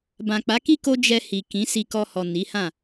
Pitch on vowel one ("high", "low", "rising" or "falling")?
low